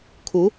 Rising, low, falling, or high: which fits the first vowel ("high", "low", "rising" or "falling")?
rising